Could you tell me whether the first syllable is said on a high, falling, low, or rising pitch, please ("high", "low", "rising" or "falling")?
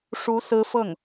rising